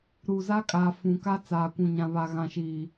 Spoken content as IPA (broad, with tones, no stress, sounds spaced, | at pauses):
ɾ u˨ z a˦ kʼ a˨ f ũ˨ k a˦ t͡s aː˨ kʷ ũ˨ ɲ ã˨ β a˨ ɣ ã˨ ʃ iː˨